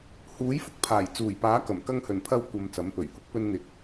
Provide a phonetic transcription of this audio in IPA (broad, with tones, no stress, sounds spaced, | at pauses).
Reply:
h uː˨˥ j f ʊ˧ k̚ pʰ aː˨˩ j t͡s uː˨˩ j p aː˨˥ k ɐ˨˩ m k ɐ˧ ŋ h ɵ˨˩ n pʰ ɐ˧ w kʷ ɐ˨ m t͡s ɐ˨˥ m p ɵ˨˩ ɥ h ʊ˨˥ k̚ p ɵ˧ n n̪ ɪ˨ k̚